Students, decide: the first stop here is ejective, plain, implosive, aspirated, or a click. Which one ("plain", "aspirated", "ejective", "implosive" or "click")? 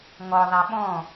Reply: implosive